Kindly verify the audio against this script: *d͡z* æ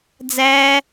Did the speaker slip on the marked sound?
no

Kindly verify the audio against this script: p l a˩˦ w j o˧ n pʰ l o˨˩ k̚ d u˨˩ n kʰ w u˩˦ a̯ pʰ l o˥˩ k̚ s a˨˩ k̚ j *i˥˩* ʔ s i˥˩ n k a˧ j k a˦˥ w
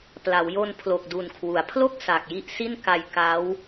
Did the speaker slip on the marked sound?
no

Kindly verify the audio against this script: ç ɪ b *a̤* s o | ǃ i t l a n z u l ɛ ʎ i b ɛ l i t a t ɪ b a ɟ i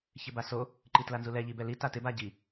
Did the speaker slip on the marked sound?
yes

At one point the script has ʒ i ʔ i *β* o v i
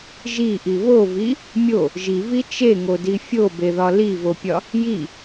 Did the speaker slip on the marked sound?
no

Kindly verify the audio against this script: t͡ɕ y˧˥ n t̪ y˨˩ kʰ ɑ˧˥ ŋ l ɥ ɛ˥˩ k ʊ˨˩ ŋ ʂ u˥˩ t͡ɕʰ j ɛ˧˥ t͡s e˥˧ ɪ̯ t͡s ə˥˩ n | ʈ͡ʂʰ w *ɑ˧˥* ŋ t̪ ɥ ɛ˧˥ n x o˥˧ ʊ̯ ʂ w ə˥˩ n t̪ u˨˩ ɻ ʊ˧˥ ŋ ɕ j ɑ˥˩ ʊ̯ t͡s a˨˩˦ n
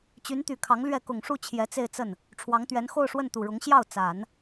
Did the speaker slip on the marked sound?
no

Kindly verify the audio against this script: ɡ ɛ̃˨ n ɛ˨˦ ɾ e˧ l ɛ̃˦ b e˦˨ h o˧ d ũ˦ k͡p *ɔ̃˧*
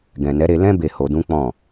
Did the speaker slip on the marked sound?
yes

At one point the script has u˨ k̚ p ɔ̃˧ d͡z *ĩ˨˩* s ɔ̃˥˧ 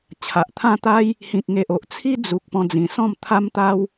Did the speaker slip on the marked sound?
no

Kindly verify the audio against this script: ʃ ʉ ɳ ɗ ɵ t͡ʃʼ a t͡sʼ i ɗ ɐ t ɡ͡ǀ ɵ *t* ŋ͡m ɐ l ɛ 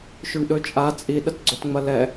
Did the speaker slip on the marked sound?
no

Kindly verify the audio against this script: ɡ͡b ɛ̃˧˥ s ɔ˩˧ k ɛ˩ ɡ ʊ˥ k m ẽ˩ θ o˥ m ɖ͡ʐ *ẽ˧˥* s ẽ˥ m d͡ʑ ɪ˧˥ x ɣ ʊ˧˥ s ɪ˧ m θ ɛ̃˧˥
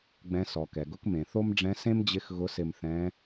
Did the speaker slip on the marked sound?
yes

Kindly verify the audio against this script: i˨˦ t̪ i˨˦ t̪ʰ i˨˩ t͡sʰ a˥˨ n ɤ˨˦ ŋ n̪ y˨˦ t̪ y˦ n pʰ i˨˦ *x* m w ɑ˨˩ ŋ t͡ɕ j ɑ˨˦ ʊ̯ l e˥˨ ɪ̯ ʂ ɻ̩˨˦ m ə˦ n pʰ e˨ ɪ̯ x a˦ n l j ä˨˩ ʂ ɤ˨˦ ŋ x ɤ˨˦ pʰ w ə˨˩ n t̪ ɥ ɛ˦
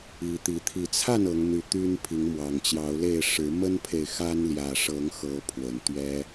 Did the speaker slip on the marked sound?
yes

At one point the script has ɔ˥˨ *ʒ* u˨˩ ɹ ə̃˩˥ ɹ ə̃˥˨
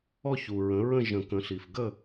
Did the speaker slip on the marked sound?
yes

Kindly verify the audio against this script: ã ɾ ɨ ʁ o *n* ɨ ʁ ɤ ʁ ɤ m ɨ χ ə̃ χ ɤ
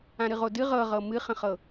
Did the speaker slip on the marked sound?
yes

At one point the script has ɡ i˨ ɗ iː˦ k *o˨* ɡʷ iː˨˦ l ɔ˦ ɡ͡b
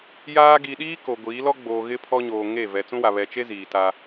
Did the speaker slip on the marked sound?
no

